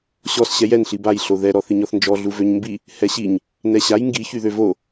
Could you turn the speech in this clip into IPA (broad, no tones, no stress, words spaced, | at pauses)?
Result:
ɕɔs ɕɛjɛn ɬibaj ɬoðɛ ɾɔθiɲɔθnd͡ʒɔ ɮuvøɲmbi | hɛɕiɲ | nɛɕaj ŋɡi çyðøvo